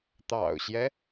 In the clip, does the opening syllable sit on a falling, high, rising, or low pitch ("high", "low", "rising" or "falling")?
low